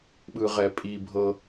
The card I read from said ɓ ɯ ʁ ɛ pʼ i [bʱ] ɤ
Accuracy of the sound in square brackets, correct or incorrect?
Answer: correct